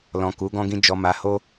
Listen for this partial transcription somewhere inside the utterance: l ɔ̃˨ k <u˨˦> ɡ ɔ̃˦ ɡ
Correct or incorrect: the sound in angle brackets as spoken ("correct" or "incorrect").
correct